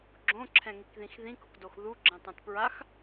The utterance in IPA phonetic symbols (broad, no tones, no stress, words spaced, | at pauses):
ɡ͡ǁõǁʰɛ̃ŋikðĩx ðĩkʊkdox ðuɡ͡ǁɛ̃tˤɛ̃t pɹax